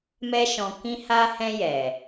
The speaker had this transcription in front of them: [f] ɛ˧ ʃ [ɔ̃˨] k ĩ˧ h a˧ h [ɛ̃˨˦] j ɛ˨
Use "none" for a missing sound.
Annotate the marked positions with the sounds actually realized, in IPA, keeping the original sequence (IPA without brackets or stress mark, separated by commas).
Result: m, ɔ̃˨, ɛ̃˧